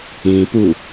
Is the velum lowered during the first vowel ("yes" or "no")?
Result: yes